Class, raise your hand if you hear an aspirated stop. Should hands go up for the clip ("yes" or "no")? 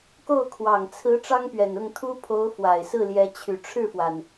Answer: yes